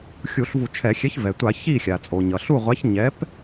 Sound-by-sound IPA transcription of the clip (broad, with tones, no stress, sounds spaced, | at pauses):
xʲ u˧˩˧ ɬ v u˧˩˧ t͡ʃʰ ɛ˧˩˧ xʲ ɛ˨˥ ç v ɛ˩ tʷ a˧˩˧ ç i˥˩ xʲ a˩ t͡sʼ o˩ ɲ ʌ˩ ɬ u˥˩ ʁʷ a˨˥ ç ɲ ɛ˨˥ p